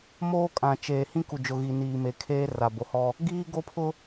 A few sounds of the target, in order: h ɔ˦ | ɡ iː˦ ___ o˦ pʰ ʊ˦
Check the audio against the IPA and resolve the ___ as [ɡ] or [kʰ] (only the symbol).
ɡ